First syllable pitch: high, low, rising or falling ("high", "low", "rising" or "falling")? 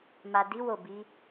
low